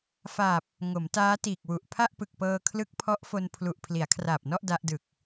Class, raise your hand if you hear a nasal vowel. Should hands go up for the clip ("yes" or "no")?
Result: no